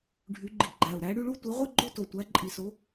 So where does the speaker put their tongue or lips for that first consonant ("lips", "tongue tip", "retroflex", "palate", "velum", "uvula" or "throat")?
retroflex